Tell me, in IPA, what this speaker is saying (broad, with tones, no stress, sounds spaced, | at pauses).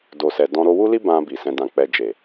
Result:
d o˨ s ɛ˨ d ɔ̃˧ ɾ o˧ w u˦ l i˦ b ã˧ b i˨ s ɛ̃˧ d ã˧ k͡p ɛ˧ d͡ʒ e˨